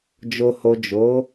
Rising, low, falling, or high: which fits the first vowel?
low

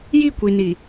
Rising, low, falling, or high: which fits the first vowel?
falling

